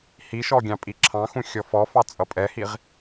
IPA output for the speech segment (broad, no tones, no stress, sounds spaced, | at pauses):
h i ʃ ɔ ɡʲ ɑ̃ pʼ i ǁʰ ɑ̃ x ũ xʲ ɔ f ɔ f ɑ t͡sʼ ʌ pʼ ɛ h i ʁ